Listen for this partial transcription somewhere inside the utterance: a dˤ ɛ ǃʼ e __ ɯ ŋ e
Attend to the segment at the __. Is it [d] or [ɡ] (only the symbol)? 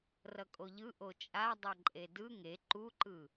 d